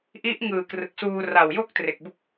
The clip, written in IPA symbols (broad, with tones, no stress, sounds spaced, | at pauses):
ʔ i˦˥ ʔ ŋ ɯː˨˩ k r ɯ˨˩ k̚ s uː˧ r a˨˩ w j o˥˩ k̚ t r e˨˩ k̚ b u˦˥ k̚